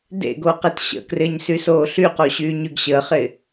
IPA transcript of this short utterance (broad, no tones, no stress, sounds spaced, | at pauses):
d ḛ ɡ o q e t ɕ ə̰ k r ɪː ɲ s y s oː ɬ y q o ɕ yː ɲ y ɡ ɕ əː χ ɪ